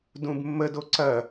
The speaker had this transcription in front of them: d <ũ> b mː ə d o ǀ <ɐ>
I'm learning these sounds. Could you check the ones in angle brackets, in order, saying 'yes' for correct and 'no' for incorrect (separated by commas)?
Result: yes, yes